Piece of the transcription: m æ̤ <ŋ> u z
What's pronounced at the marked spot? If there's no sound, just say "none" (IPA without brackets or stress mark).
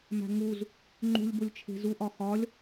ŋ